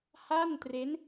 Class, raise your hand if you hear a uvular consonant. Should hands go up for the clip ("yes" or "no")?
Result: no